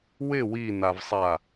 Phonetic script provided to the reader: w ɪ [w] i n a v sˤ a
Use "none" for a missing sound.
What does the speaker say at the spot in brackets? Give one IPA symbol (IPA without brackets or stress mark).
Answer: w